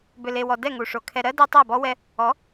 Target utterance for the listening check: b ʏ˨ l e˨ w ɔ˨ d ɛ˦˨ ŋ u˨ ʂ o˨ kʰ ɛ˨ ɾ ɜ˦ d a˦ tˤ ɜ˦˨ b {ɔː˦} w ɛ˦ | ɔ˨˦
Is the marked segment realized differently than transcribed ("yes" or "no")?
yes